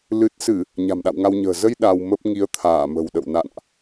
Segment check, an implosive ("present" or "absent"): present